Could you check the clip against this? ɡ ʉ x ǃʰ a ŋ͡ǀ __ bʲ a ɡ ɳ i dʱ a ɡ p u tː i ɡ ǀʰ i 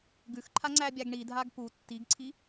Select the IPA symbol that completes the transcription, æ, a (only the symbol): æ